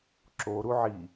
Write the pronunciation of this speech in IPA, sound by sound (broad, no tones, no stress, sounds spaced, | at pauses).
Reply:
ǁ o ɾ u ʕ i